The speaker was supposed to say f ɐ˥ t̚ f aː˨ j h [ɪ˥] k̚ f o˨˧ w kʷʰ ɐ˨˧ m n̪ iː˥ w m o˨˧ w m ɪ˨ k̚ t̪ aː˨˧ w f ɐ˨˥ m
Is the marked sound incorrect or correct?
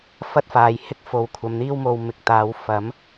correct